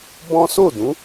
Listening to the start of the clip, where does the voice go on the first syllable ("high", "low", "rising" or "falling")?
high